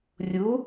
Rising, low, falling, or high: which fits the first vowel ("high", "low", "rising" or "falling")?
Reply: rising